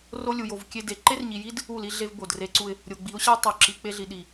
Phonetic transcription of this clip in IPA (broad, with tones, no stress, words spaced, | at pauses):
ro˦ lʲu˨jo˨v kʲe˦de˨ ǃe˦rɲi˨ji˦d | u˦˨li˦ ɮe˦vbo˨dre˦ǀu˦ɪ̯ | ɾʲo˨ɡ͡bi˨˦ʊ̯ ɕæ˦tˤo˨ǁi˨ k͡pe˦ɮi˨ɗi˨